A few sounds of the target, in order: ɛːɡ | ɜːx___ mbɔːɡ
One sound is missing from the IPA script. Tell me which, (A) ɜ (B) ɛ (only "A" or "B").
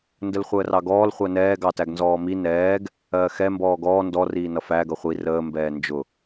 B